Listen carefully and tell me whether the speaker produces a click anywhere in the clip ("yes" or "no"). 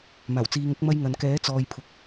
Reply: no